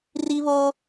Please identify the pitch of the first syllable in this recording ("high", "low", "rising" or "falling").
high